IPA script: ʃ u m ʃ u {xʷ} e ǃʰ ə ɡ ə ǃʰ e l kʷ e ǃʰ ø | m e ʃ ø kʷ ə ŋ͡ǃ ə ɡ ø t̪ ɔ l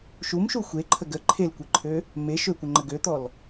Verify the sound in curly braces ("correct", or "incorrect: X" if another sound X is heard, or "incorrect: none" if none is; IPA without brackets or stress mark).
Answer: correct